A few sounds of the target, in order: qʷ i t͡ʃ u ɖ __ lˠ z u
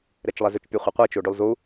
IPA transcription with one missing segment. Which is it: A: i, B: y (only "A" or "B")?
B